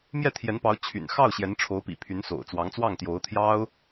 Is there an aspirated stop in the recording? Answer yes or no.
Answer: yes